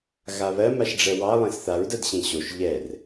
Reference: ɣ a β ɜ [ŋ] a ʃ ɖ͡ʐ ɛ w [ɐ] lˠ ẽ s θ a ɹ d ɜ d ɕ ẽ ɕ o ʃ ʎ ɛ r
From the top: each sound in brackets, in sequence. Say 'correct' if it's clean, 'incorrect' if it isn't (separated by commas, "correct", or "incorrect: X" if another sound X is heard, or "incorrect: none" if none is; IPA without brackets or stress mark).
incorrect: m, incorrect: ɑ